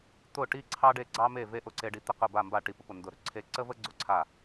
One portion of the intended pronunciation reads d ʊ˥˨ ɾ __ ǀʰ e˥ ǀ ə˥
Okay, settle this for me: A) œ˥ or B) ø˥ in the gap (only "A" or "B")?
B